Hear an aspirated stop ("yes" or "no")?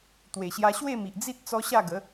no